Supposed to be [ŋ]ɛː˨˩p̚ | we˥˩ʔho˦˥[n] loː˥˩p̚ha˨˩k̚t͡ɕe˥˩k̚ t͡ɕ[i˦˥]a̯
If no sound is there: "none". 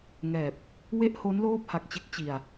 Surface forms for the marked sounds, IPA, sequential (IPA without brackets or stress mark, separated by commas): ŋ, n, i˧